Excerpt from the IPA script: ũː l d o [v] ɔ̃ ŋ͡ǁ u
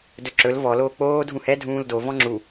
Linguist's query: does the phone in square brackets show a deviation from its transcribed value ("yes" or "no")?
no